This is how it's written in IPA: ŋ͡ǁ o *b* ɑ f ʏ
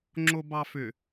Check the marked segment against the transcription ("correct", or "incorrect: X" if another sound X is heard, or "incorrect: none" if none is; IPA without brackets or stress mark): correct